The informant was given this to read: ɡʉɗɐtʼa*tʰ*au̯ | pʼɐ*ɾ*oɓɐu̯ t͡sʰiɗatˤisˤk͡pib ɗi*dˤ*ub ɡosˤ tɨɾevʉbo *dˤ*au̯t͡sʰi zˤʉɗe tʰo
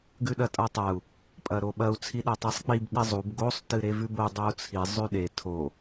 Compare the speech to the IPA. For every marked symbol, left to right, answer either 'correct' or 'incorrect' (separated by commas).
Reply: incorrect, correct, incorrect, correct